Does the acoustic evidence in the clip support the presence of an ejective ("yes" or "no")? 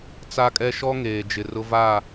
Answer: yes